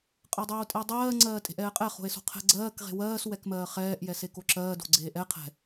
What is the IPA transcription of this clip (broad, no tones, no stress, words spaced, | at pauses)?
qʼɜdˤoːtʼɛo̯dˤɜː ŋ͡ǀɜːtʼe̤ʔɛːqʼɛ χo̤e̯so̤qʰɛ̤ ɡ͡ǀɜːk ʁe̤wɜːs wɛkmɜːχɛːʔ jɛsekoǁɜː do̤ɡ͡ǀeːʔɛ qʰɛ̤